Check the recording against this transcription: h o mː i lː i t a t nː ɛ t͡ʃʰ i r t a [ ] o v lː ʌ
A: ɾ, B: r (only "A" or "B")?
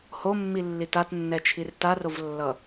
B